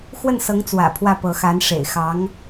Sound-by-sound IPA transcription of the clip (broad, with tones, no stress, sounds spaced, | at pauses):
x w ə˥˩ n s ɤ˧˥ ŋ t͡s w ä̰˨˩ pʰ w ä˥˩ p ɤ˧˥ x a˧˥ n ʂ ḛ˨˩ ɪ̯ x ɑ˧˥ ŋ